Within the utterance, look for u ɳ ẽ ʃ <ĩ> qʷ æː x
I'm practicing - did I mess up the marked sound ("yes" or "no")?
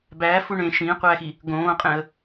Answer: yes